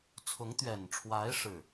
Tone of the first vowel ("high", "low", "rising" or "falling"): rising